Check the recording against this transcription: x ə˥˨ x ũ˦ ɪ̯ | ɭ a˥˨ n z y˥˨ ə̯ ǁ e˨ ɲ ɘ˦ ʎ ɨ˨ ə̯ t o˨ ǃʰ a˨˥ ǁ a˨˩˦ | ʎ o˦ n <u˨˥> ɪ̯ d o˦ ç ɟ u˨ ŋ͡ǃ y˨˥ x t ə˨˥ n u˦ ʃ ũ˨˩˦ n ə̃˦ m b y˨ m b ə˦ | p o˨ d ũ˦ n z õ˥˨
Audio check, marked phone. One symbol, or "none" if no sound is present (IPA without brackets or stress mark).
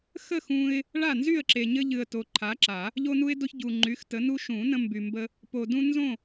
u˦